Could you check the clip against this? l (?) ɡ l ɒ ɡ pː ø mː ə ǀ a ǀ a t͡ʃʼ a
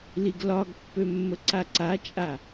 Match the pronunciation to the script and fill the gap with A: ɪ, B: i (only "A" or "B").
B